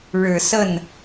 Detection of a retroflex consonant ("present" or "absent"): present